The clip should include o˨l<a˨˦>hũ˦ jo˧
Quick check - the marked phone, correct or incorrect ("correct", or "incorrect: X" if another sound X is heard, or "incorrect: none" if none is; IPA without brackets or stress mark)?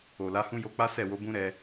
correct